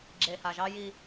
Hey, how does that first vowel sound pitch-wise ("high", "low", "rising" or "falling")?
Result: low